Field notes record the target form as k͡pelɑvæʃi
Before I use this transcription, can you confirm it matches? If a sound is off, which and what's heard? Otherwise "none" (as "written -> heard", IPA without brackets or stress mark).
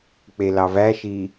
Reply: none